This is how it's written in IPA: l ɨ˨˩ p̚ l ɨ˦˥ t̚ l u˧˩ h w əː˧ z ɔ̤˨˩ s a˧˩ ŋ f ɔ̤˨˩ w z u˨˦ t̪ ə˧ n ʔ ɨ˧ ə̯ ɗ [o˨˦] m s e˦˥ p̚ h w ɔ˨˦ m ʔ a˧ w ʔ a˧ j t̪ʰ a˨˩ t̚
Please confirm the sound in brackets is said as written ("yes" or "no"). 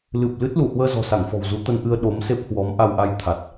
yes